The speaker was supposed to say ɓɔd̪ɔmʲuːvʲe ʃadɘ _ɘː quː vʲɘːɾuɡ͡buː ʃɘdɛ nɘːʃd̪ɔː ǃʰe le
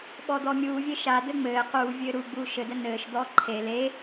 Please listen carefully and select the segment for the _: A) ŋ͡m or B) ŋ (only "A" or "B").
A